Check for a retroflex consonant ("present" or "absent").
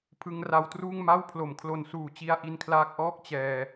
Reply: absent